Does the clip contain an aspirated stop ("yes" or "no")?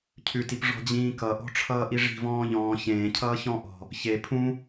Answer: yes